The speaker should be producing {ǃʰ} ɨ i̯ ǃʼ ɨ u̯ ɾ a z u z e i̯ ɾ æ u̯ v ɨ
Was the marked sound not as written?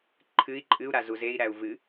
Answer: no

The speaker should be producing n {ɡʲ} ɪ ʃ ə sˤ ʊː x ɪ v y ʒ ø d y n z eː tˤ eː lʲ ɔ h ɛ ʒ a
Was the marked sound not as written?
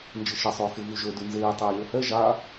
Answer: yes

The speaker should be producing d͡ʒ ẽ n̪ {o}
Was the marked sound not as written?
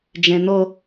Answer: no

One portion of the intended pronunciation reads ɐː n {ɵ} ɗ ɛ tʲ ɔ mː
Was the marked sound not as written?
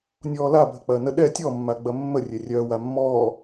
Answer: yes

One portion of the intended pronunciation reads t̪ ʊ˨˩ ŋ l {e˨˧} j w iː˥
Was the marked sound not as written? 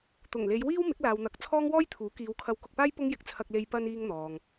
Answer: no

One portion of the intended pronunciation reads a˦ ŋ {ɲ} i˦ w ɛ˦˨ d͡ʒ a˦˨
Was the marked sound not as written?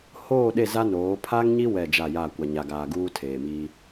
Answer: no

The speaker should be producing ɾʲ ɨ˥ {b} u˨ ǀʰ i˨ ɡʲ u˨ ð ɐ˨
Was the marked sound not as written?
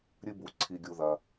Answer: no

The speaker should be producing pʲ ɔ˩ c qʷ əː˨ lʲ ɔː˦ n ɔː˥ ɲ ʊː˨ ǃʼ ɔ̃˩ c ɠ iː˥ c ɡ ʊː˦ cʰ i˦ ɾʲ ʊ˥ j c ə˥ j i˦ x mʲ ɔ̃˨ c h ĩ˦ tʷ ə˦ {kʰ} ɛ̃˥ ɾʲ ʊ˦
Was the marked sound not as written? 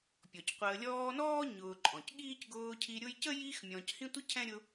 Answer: yes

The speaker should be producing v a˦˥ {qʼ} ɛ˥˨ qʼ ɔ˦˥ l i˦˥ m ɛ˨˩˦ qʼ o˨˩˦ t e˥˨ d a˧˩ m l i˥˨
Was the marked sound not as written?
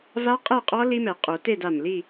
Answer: no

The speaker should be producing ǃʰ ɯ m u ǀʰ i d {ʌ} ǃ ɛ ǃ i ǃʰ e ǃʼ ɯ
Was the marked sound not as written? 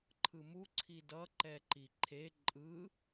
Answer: no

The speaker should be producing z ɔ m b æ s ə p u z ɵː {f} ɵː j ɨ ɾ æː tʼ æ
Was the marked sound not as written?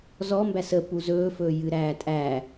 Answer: no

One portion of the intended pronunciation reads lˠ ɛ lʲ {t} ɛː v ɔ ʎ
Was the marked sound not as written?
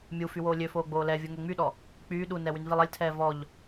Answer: yes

